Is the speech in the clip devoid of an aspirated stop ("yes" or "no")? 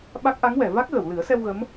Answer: yes